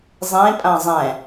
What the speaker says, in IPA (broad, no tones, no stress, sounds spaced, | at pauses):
zˤ ẽ pʼ ã zˤ ɛ̃